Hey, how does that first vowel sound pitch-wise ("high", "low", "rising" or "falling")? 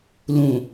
low